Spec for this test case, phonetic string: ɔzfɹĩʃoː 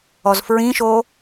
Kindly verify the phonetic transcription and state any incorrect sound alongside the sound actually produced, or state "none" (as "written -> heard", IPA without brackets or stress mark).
none